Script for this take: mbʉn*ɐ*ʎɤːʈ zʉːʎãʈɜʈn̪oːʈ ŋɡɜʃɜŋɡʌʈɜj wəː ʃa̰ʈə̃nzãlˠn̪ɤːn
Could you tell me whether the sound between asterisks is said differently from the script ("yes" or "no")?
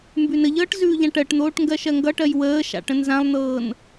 yes